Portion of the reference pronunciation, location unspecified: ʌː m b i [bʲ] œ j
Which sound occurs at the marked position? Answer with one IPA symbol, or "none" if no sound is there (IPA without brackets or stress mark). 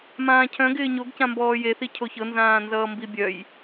bʲ